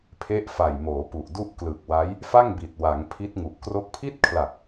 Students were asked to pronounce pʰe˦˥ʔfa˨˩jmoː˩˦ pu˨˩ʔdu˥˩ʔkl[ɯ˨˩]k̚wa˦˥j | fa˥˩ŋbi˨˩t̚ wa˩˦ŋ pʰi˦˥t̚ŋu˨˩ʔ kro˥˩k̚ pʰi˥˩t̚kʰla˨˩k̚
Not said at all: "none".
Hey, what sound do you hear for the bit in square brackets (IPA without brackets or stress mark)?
ɯ˨˩